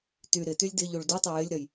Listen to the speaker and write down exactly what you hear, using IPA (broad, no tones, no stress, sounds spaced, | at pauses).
t y ɾ ɪ t y lʲ d ɪ ʎ u ɭ d u tˤ ə j ɪ lʲ ɾ ɜ j